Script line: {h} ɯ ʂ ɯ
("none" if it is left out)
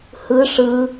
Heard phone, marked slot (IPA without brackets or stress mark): h